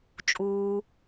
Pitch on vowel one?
low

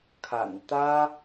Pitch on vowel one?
low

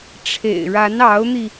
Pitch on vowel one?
low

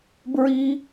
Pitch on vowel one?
high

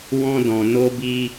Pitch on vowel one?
high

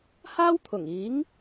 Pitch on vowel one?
high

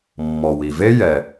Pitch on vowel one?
low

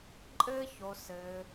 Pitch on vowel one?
high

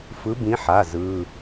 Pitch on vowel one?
rising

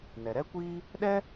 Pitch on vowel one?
low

